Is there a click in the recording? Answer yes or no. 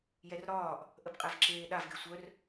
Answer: yes